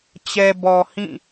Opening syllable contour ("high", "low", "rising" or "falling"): low